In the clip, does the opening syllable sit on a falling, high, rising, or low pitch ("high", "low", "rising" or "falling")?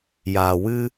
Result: low